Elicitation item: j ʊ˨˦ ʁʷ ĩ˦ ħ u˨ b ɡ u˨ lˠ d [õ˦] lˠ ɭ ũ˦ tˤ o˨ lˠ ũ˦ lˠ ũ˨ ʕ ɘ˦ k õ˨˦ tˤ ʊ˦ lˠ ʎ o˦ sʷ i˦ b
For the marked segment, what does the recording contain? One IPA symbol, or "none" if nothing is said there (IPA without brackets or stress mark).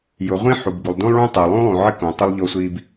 ũ˦